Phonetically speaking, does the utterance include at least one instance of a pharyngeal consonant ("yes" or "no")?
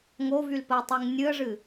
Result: no